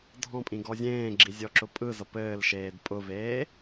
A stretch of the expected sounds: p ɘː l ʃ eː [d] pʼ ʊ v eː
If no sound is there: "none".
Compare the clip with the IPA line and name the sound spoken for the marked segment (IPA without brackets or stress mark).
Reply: d